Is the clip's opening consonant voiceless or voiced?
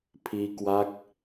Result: voiceless